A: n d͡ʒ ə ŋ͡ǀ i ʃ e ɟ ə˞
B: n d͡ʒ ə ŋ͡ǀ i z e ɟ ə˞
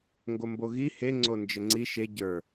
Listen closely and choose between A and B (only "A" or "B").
A